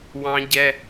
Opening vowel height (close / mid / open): open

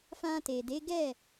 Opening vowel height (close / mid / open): open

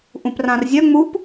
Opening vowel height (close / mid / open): close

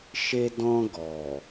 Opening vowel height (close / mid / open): mid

